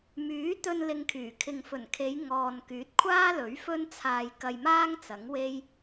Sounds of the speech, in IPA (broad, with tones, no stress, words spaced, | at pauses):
myː˨˥t̪ɵ˧n lɪ˧ŋkʰyː˨˩ kʰɪ˨ŋfɵ˨˩nkʰe˨˧j ŋɔː˨nkyː˨˥t̚kʷʰaː˥lɵ˨˥ɥ fɵ˥nt͡sʰaː˧jkɐ˧jmaː˥ŋ t͡sɐ˨˥ŋwe˥j